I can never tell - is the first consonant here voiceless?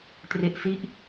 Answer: yes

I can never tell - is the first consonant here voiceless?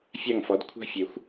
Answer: yes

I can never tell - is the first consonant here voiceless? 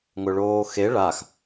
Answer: no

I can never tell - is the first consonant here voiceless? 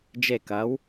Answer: no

